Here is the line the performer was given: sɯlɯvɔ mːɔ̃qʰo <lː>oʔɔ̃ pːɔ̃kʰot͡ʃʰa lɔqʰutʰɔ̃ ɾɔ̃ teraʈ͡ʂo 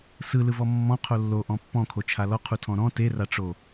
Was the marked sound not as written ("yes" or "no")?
no